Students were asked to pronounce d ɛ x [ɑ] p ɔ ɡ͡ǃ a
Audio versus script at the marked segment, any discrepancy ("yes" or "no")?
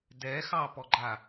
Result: no